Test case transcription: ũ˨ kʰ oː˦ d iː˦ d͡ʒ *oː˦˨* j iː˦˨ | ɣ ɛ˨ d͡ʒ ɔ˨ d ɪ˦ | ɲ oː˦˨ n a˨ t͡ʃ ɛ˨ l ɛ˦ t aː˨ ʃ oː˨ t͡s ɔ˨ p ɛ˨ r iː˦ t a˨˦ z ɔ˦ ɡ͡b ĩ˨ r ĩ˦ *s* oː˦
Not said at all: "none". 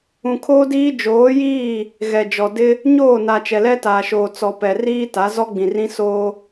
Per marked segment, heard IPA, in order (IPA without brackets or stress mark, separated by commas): oː˨˦, s